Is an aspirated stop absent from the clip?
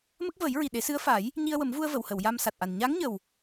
yes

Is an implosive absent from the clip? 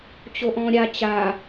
yes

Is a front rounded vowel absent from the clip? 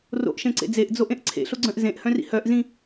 no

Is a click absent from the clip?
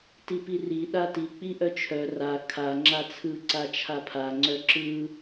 no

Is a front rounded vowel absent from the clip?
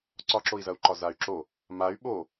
no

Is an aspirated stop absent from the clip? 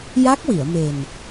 yes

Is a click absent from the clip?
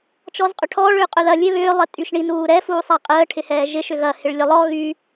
yes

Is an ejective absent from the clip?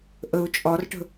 no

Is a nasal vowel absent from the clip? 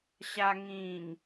no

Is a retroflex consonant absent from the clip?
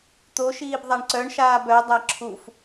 no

